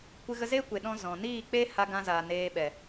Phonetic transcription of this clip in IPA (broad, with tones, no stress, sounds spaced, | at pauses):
kʷ ɨ˧ ɣ ə˧ z eː˦ kʷ e˨ ɗ ɔ̃˧ z ɔ̃˨ n iː˦˨ k͡p e˦ h a˧ ɡ ã˧ z a˨ n eː˧ ɓ ɛ˨